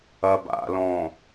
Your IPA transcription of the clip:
ɐ b a̰ l ɔ̃

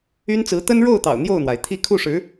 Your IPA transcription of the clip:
y˥ n t͡s ɹ̩˧˥ t̪ ə˥ n ɻ o˥˩ ʊ̯ t̪ ɑ̰˨˩ ʊ̯ n̪ j o˥˩ ʊ̯ n̪ w a˩ ɪ̯ t̪ʰ i˥˧ kʰ u˥˩ ʂ ɻ̩˧˥

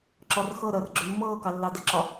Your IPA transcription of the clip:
ǁ ɔ r x ɤ ɾ əː r ɡ͡ǁ ʏ mː ɤː k ɑ lː ɑ d ə ǁ ɒ

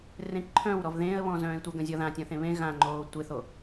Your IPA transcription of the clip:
r ẽ ǃʰ œ̃ w ɾ ɔ v ð ẽ ə̯ β ɔ̃ z œ̃ː ɪ̯ tʷ ə ɡ ə̃ zʲ ɔ ð ã tʲ ɔ̃ θ ẽ β ẽ ɣ ã ŋ͡ǃ oː tʷ e θ o

